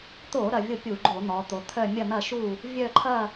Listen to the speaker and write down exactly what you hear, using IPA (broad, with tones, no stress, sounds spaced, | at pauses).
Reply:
t̪ o˧˩˧ ɾ ɐ˩˧ vʲ o˦˨ pʲ u˧˩˧ ɡ͡ǃ o˧˩˧ n̪ ɔ˩˧ t̪ o˩˧ t̪ʰ œ˦˨ mʲ ɐ˦˨ n̪ ɐ˦˨ ʃ u˦˨ | vʲ œ˦˨ ǃʰ ɐ˦˨